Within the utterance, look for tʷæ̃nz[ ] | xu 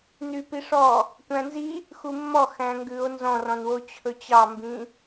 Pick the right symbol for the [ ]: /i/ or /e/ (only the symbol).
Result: i